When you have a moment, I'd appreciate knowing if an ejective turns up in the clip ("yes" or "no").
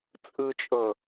yes